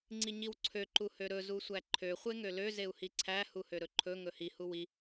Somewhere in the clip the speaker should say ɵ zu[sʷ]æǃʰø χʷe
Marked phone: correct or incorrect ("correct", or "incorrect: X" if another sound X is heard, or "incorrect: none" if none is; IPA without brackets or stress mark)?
correct